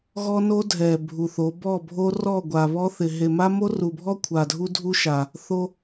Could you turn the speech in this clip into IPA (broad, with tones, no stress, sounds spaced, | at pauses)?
ɣ ɔ˦ n o˦ dʱ ɛ˨ bʱ u˨ θ o˨˦ b ɔ˦˨ bʱ o˦ r ɔ˦˨ ɡʷ a˨ β ɔ˦ θ ɪ˨ ɦ e˨ m a˦ m o˦ r u˨ bʱ ɔ˦ kʷʰ a˨ dʱ u˦ dʱ u˦ ʃ a˨ | θ o˦